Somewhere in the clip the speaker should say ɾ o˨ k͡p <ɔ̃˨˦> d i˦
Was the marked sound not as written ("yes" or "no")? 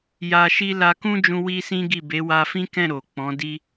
no